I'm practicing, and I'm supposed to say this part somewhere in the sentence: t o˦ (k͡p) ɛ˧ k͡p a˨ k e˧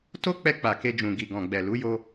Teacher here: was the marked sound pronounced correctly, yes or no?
yes